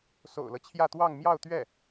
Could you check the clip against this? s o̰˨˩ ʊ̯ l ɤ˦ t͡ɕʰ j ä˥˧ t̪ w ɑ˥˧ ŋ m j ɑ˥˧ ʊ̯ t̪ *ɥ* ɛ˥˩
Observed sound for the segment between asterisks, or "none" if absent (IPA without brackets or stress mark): ɥ